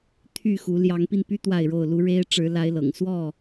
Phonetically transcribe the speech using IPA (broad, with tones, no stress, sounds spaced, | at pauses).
t̪ʰ y˥˨ x u˨˦ l j ɑ˨˦ ŋ p i˧ n p y˦ t̪ w a˥˨ ɪ̯ ɻ o˥˨ ʊ̯ l u˦ ɻ e˦ ɪ̯ ʈ͡ʂ ɻ̩˨˦ l a˨˦ ɪ̯ l ɤ̰˨˩ ŋ s w ɔ˥˨